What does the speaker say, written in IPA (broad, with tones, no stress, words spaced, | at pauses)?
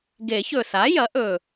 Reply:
ɡe˨˩˦çɵ˨˩ sa˩˥jɐ˩˥ʔɵ˨˩